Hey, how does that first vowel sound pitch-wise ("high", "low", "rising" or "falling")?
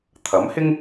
rising